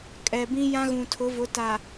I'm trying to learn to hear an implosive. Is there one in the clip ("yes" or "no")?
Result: no